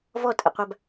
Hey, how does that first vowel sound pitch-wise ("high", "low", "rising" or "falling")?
falling